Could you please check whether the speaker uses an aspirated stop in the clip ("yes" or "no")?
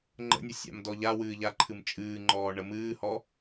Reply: yes